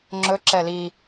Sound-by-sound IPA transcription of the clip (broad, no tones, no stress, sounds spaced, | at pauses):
ŋ͡ǁ ɵ ǁ ɛ l i